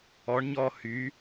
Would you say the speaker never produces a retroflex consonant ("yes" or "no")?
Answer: no